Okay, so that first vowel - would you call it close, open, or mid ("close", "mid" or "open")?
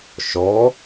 mid